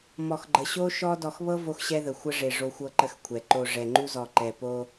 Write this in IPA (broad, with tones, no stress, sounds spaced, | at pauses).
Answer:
m ɔ˨ x ɡ͡ǃ ə˨ ɕ o˦ ʃ ɔ˦ d ɔ˨ x β ɤ˦ v o˦ x ɕ ɛ˦ ð ə˨ xʷ ə˦ ʐ e˨ ʐ o˦ xʷ ɤ˦ ǃ ə˦ x kʷʰ ɛ˨ ǃ o˨ ʐ ɛ˨ ŋ͡ǃ u˦ z ɔ˨ ǃ ɛ˨ p o˦